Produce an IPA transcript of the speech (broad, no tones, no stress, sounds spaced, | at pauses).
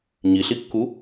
ɲ i ɬ i kː u